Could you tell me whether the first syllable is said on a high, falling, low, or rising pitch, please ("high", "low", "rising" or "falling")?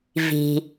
low